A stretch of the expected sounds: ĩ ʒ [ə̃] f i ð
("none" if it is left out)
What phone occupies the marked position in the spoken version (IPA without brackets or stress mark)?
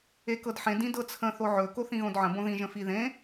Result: ə̃